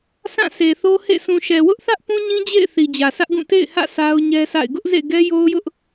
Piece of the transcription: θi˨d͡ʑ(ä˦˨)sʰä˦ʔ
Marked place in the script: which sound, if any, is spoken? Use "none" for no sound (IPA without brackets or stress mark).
ä˨